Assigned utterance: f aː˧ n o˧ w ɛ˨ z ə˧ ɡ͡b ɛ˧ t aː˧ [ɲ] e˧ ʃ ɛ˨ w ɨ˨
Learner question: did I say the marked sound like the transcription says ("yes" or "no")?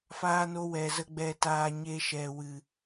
yes